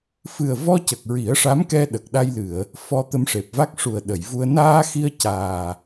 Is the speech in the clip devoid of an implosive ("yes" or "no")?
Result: no